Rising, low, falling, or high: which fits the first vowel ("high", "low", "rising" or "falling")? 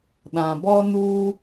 low